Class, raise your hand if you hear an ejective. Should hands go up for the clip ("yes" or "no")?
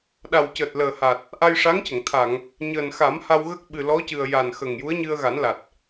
no